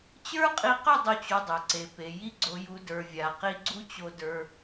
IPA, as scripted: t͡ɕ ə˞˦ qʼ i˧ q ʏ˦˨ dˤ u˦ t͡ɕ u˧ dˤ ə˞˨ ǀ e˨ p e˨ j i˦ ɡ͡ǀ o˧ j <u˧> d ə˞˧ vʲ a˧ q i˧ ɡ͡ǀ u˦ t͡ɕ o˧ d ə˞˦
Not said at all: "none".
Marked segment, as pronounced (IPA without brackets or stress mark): u˧